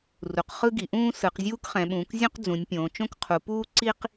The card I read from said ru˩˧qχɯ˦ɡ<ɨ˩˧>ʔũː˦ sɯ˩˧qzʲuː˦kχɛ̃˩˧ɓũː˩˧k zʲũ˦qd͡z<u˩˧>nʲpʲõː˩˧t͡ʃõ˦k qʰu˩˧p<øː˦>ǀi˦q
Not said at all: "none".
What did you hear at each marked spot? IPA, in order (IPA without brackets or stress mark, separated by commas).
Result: i˩˧, ũ˩˧, uː˦